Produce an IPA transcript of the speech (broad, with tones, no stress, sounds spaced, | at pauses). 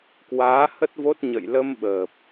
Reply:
k w aː˨˦ h ə˦˥ t̚ v o˦˥ t̚ ɲ ə̰˧˨ j l ə˧ m ɓ əː˨˩ p̚